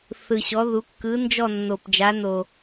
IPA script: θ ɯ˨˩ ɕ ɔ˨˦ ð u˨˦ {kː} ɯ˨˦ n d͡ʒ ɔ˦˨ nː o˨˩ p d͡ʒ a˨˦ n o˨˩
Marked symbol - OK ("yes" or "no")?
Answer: yes